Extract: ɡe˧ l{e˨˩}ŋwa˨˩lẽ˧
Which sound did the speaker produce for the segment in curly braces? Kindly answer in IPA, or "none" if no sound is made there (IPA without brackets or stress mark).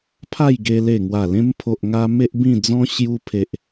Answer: e˨˩